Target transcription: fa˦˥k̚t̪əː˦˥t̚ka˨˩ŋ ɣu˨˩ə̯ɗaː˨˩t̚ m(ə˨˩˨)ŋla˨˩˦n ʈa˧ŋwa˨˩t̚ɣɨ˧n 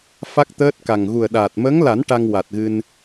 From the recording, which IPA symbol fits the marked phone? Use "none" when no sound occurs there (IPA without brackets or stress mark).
ə˧˥